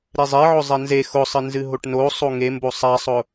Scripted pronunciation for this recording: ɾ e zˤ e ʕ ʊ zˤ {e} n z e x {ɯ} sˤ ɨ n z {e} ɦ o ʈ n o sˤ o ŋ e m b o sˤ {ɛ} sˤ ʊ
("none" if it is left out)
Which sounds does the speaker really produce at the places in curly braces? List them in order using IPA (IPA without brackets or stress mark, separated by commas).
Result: ɛ, ʊ, ɨ, æ